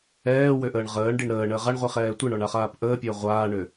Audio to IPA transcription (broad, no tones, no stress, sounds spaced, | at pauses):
ɛː w ø ʔ əː ɳ ʁ əː ɳ ɖ i ɳ ɾ əː ɳ əː ʁ a ɳ ʁʷ i χ ɛː tʷ i ɳ ɔ ɳ a χ aː p ʔ əː pʲ əː ʁʷ aː ɳ ø